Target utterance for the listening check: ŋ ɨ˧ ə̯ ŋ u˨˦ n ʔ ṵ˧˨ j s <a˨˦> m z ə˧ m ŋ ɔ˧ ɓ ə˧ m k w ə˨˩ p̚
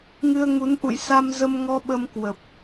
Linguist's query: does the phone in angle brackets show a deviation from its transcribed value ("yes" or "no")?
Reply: yes